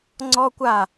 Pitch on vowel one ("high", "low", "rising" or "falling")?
high